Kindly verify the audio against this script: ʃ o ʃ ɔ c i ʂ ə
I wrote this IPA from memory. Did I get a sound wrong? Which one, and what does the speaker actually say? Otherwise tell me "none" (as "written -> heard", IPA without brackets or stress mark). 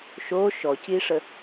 none